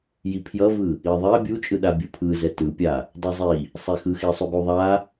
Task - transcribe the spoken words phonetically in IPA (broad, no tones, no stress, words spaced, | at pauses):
jipʰjʌvɯ | iðˤɛ bʲut͡ʃʼɯɗa bʲɯpʰɯzɛ tɯpʲa | dˤuzˤi | sˤexɯxesˤu ɡuðˤa